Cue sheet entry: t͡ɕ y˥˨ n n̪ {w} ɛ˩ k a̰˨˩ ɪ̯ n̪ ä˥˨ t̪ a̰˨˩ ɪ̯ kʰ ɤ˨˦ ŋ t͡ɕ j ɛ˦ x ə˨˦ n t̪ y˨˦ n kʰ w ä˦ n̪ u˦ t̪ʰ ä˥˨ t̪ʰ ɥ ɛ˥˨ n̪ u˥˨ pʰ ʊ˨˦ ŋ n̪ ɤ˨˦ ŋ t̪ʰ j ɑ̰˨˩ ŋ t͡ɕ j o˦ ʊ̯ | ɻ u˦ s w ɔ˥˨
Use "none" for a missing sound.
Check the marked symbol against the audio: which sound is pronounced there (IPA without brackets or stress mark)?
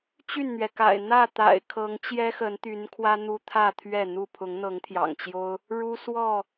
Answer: ɥ